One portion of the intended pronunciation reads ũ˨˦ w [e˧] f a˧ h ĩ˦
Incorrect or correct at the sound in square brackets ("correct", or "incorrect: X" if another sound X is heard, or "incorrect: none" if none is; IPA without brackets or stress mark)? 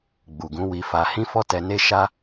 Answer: incorrect: i˧